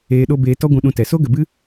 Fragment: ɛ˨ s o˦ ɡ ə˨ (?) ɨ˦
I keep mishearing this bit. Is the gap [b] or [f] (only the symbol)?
b